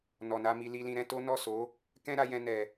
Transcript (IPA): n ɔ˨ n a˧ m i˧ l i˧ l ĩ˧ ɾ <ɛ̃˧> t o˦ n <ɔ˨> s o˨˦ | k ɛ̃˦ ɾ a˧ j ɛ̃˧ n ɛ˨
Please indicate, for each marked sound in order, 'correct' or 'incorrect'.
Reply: correct, incorrect: ɔ˦˨

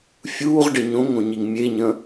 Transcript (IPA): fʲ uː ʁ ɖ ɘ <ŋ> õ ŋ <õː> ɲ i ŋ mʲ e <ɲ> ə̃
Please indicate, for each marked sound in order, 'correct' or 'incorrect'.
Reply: incorrect: ɲ, incorrect: õ, correct

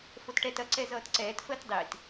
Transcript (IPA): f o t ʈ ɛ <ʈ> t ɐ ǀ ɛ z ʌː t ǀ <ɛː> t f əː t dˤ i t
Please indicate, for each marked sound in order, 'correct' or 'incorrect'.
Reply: incorrect: none, correct

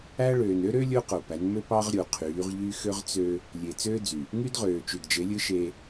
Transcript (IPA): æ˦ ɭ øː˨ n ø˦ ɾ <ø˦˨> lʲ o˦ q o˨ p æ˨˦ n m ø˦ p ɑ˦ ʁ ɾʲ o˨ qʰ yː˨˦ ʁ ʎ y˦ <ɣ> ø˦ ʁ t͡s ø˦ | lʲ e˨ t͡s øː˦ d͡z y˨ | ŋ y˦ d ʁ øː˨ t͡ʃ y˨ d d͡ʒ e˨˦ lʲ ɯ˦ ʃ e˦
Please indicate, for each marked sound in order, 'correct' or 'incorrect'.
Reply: incorrect: ø˦, incorrect: x

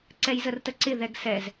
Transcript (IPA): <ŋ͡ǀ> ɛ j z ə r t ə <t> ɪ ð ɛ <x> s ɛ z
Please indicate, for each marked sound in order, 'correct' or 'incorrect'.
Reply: incorrect: ǀ, incorrect: ǀ, incorrect: ɡ

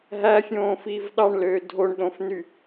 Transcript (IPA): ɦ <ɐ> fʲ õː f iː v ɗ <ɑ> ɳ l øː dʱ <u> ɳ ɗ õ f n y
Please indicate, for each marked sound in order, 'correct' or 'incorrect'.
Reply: incorrect: æ, correct, incorrect: o

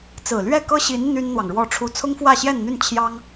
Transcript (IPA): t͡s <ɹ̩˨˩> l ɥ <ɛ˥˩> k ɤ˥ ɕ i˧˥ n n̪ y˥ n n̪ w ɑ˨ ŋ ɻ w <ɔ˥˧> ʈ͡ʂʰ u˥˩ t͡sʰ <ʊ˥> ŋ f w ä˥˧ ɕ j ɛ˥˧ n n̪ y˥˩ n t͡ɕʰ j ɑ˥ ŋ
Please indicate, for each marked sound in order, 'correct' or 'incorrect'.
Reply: correct, correct, correct, correct

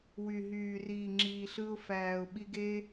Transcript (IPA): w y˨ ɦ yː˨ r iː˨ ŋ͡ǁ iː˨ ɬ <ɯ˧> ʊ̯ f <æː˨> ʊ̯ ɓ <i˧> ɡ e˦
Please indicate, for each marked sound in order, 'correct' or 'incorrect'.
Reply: correct, correct, correct

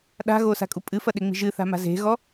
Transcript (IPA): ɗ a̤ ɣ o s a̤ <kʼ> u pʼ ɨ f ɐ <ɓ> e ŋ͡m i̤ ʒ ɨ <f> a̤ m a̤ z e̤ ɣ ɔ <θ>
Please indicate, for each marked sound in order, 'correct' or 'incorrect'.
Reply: correct, incorrect: ɗ, incorrect: θ, incorrect: none

